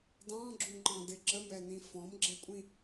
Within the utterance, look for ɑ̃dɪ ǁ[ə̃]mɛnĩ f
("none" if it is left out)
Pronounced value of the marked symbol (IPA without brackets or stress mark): ə